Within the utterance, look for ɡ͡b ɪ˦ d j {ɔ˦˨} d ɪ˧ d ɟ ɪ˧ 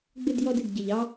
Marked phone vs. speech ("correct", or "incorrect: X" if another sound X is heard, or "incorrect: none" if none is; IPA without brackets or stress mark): incorrect: ɔ˦